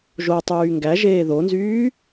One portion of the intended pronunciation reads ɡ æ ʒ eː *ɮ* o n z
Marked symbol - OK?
no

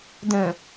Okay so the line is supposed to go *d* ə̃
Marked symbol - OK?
yes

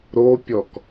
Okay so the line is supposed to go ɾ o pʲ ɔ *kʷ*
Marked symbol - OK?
no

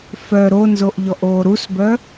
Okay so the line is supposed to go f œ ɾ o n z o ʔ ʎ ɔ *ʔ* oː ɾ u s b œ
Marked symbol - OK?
yes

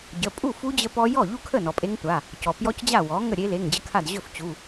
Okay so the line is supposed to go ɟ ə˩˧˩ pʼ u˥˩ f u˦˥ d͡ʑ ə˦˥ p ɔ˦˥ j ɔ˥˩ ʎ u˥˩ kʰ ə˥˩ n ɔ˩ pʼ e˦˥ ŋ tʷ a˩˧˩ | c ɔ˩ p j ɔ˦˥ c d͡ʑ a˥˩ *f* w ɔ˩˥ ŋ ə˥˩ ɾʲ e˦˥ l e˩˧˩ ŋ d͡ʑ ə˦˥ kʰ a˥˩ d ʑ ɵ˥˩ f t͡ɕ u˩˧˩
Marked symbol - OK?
no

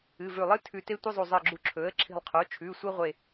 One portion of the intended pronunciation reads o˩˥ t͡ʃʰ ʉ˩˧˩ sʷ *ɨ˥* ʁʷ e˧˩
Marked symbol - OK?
yes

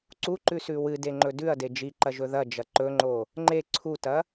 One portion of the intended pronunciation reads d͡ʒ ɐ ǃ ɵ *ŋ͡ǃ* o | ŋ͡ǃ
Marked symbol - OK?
yes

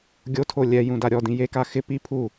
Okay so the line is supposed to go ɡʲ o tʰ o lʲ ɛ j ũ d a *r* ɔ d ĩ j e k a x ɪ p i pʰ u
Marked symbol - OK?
no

